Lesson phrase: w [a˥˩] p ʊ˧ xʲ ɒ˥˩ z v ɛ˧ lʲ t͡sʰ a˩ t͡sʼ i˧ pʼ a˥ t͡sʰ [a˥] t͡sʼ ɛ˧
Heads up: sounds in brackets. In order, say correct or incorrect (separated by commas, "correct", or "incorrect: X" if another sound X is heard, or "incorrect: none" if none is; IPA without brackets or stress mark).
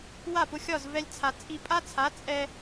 correct, incorrect: a˩˥